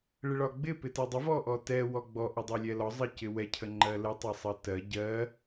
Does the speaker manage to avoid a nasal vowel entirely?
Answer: yes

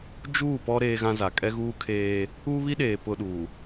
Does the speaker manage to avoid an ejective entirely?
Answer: no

